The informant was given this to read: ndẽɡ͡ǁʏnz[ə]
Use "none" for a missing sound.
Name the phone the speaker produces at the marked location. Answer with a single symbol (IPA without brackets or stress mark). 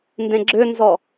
ɔ